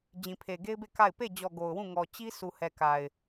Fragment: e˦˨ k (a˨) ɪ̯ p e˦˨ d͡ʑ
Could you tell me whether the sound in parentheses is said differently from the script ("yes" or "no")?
yes